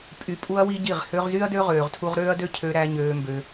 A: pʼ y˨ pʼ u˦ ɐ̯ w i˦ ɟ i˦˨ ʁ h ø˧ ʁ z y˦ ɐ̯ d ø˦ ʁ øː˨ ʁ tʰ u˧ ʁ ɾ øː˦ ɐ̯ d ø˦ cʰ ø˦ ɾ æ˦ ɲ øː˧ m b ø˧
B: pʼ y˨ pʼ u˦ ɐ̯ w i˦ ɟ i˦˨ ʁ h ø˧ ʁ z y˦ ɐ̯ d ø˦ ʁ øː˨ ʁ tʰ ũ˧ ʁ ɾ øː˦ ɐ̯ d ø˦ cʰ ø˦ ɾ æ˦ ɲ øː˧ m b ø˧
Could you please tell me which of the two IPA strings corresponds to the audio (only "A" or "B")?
A